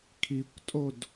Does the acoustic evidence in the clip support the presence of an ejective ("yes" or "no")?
yes